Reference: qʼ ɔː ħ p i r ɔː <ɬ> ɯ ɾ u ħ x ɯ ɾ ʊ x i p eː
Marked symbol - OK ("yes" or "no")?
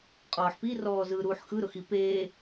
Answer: no